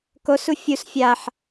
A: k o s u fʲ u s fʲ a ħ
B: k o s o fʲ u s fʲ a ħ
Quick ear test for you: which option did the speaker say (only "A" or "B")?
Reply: A